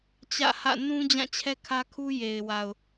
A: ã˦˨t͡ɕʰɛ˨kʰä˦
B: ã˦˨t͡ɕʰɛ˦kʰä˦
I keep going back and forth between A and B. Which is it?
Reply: B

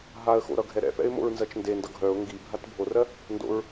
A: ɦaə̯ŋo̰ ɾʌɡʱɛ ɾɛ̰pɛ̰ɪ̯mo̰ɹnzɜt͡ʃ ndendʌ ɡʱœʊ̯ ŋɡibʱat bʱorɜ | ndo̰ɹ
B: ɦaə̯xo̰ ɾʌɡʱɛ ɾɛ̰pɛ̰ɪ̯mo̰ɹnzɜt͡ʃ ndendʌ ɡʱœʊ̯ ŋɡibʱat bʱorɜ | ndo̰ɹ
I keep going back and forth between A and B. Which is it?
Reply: B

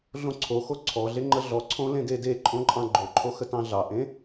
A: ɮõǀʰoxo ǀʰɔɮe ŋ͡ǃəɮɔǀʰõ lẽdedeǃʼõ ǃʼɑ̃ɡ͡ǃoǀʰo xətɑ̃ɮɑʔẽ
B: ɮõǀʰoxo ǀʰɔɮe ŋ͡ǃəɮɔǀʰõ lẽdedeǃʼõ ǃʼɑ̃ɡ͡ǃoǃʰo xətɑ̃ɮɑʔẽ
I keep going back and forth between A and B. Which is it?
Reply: B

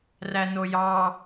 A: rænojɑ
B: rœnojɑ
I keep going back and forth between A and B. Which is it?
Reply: A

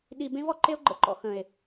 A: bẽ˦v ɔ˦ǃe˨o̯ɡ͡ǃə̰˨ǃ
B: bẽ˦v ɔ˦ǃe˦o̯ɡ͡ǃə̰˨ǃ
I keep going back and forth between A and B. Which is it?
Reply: B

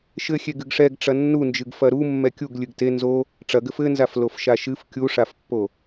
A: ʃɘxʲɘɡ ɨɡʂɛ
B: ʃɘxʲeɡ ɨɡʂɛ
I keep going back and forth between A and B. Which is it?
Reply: B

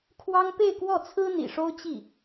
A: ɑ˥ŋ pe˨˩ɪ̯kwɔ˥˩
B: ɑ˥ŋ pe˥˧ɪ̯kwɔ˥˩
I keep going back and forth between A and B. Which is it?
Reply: B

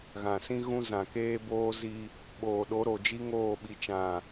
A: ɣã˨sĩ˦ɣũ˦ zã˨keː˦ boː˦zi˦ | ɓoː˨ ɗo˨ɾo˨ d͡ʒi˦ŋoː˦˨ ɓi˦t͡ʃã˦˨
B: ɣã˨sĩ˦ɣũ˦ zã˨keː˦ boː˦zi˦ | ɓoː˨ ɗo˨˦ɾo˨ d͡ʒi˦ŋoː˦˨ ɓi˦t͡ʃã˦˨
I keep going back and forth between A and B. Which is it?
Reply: B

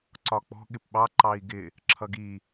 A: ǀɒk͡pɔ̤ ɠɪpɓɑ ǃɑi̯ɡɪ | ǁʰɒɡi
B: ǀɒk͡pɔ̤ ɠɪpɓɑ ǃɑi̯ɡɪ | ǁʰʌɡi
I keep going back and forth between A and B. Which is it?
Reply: B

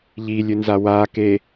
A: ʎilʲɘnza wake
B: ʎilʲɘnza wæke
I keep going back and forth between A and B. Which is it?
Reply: A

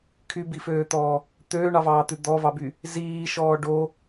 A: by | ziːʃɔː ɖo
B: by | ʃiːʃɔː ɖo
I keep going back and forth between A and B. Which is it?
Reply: A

